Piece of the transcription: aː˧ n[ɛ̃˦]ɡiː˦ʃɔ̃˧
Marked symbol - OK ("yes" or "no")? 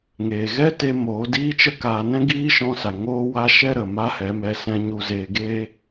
yes